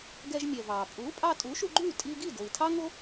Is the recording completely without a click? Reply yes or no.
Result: no